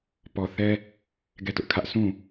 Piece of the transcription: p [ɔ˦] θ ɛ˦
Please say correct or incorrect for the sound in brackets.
incorrect